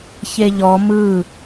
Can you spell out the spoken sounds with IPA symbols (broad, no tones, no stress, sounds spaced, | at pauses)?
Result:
ç e ʎ ɔ m ɯ